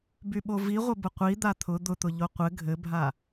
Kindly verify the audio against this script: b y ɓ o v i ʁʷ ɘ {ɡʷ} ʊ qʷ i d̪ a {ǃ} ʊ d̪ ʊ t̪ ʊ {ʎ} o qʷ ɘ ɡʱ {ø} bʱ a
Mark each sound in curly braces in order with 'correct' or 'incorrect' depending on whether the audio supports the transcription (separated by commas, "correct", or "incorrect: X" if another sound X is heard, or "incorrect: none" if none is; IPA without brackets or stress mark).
incorrect: b, incorrect: t̪ʰ, correct, incorrect: ɘ